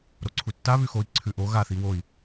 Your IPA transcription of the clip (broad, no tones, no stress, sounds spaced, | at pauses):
ɾ o ǀʰ u tː a β ʉ x o i̯ ǀʰ ʉ ʔ o ɣ a θ i w o i̯